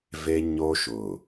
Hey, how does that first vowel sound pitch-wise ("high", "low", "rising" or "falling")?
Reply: high